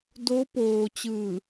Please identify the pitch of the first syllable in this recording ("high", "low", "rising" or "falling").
rising